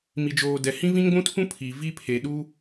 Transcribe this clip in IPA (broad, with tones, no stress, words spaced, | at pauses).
mi˨d͡ʒoː˨ dɛ˨ hĩ˦vĩ˦ŋɡʷũ˦tʰũ˦ pʰi˨ vi˦pʰe˨ ɗu˦